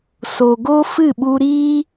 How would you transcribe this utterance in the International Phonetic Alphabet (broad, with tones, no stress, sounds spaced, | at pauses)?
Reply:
s o˨ ɡ o˦ f ɨ˦˨ ɓ u˧ ɾ iː˦